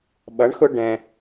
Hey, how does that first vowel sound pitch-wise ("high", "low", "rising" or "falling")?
rising